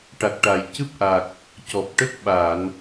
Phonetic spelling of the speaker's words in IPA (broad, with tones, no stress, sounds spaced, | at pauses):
ʈ a˨˩ k̚ ʈ a˨˩ j c ɨ˦˥ p̚ ʔ a˨˩ k̚ | c ɔ˨˩ p̚ ʈ ə˦˥ k̚ ɓ a˨˩˨ n